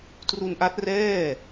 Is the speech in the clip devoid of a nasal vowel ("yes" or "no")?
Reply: yes